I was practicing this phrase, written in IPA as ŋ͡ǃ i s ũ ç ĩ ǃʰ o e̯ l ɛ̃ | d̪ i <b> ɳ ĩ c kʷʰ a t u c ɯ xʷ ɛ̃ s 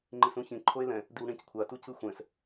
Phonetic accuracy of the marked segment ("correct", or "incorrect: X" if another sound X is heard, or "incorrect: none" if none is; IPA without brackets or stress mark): incorrect: w